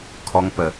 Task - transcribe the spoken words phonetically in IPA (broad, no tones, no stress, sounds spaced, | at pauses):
kʰ ɔ ŋ p ə